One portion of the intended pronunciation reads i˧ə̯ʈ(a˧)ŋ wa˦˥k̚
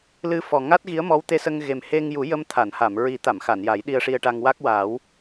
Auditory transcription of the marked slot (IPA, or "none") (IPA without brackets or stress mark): a˧